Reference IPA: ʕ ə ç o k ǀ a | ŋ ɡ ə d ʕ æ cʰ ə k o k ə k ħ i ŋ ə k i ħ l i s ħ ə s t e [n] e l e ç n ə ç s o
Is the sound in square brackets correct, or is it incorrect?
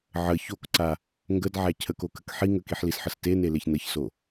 correct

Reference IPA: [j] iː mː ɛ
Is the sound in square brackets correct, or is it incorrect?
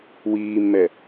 incorrect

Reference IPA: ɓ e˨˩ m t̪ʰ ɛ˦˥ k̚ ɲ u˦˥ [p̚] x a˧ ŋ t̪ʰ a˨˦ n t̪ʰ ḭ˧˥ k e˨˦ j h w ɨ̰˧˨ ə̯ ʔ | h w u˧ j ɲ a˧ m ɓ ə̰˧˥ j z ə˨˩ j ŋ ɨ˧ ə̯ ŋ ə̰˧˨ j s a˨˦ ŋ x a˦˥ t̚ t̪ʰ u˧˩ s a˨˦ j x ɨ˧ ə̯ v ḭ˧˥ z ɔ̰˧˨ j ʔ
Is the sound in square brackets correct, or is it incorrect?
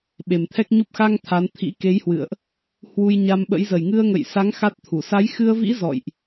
correct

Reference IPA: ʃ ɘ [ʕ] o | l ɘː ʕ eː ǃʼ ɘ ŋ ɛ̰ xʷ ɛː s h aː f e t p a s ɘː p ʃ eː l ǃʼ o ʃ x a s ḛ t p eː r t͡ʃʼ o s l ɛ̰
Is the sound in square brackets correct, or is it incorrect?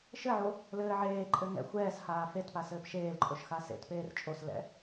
correct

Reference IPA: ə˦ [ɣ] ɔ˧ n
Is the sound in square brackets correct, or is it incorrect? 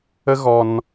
correct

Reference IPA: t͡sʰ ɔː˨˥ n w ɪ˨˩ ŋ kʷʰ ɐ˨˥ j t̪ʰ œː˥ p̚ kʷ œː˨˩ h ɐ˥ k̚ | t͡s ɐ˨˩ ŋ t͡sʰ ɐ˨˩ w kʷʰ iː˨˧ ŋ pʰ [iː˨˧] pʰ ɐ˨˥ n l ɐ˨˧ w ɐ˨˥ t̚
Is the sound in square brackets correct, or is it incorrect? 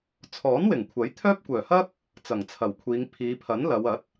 correct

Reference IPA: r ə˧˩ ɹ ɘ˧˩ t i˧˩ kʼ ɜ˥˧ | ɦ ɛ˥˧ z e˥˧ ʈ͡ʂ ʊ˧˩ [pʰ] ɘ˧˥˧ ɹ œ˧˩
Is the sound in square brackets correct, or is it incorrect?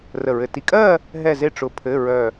correct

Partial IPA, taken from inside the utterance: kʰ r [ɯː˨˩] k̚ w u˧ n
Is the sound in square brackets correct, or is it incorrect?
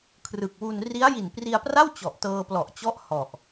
incorrect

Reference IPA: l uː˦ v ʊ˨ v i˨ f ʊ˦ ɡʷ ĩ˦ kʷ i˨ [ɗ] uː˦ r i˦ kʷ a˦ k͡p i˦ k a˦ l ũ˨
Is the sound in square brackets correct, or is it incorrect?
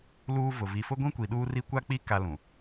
correct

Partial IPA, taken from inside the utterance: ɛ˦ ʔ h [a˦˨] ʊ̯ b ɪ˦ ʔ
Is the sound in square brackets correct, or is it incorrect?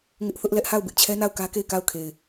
correct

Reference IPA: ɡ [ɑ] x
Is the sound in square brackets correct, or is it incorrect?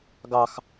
correct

